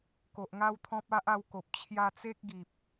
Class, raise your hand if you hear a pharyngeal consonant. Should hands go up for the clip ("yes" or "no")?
no